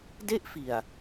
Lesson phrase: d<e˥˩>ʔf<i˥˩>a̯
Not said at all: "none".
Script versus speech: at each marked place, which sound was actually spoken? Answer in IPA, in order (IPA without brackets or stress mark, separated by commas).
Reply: e˥˩, i˨˩